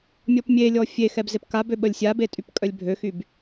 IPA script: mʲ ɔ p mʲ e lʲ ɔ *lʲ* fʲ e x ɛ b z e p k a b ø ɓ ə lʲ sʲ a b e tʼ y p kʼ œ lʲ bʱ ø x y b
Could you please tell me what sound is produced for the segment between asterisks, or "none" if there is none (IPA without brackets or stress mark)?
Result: none